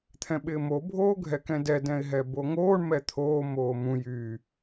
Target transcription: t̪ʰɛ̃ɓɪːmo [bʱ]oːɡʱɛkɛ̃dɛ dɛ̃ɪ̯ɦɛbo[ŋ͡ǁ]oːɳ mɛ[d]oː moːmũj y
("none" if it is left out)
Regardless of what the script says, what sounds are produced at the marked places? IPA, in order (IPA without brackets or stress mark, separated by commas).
bʱ, ŋ, t̪ʰ